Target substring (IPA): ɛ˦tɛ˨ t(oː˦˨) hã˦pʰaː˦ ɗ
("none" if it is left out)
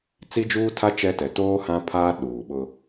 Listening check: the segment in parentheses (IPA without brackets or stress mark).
oː˦